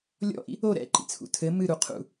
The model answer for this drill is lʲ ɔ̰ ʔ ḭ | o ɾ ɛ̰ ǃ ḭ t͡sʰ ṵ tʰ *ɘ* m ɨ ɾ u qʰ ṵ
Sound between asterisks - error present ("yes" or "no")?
no